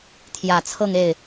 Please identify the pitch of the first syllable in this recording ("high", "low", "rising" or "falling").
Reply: low